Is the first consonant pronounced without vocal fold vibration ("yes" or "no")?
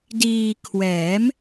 no